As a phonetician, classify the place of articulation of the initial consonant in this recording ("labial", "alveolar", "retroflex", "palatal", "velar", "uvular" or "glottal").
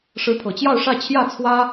retroflex